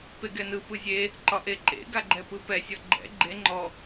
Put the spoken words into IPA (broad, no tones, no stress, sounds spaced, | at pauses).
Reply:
p e ɡ ɛ n ɯ p ɯ zʲ e | ǃ ɒ ʔ e ǃ ḛ ɡ a ɡ͡ǃ ɛ p ɯ p ɛ sʲ ɔ ɡ͡ǃ ɛ̰ ɡ͡ǃ e ŋ͡ǃ ɔ